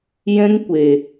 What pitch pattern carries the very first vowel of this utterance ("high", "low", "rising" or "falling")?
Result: high